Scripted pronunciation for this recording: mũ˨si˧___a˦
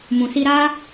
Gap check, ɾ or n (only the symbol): ɾ